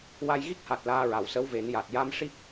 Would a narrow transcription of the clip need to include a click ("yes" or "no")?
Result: no